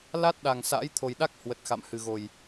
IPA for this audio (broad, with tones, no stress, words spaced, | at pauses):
la˦˥t̚ɗa˨˩ŋ sa̰ː˧˥jt̪ʰo˨˩jɗa˦˥k̚ hwə˨˩t̚xa̰˧˨mhɨ˨˩ ɣo˨˩j